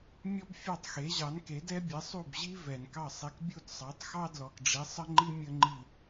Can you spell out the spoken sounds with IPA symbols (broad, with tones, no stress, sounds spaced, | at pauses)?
mʲ ɔ˥ b fʲ ɑ˥˩ tˤ x e˩˥ ʑ ɑ˩˥ n k e˩˥ d ɛ˥ bʲ ɛ˩˥ sˤ u˥˩ b ʑ i˥ v ɛ˩ n k ɑ˥˩ sˤ i˧ k bʲ u˥˩ d sˤ ɑ˩˥ tˤ x ɑ˥ d l ɔ˩ k ɖ͡ʐ i˩˥ sˤ ə˥ ŋ͡ǃ i˥ mʲ ə˥ ŋ͡ǃ i˥˩